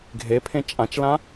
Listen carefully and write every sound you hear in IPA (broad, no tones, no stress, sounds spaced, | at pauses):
ɡʱ e pʰ ẽ t͡ʃʼ ã t͡ʃ l ã